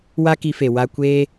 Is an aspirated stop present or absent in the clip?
absent